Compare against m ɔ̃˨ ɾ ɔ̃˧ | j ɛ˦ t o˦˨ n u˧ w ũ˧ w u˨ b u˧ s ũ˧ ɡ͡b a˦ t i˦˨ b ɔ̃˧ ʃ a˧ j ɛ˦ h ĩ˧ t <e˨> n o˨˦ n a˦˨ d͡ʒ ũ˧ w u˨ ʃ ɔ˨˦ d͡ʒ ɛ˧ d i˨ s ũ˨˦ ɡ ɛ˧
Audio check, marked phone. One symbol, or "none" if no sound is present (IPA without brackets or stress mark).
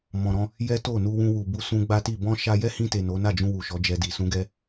e˨